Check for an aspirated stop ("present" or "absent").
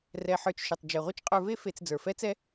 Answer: absent